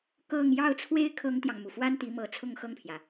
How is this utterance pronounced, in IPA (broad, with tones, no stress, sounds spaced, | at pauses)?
k ɤ˥˧ ŋ j ɑ˥˩ ʊ̯ t͡sʰ w e˥ ɪ̯ kʰ ɤ˥ ŋ t̪ j ɑ˨ ŋ m u˩ f w a˥ n t̪ i˧˥ m ɤ˧˥ t͡sʰ ʊ˥˧ ŋ x ɤ˥˩ ŋ pʰ j ä˩